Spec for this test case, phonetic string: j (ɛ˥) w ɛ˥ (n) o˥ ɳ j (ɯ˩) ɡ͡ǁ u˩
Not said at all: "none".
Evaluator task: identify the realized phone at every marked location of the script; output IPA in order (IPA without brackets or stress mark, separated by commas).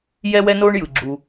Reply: ɛ˥, n, ɯ˩